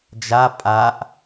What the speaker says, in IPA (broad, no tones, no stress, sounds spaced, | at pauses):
d͡ʒ a pʼ a ʔ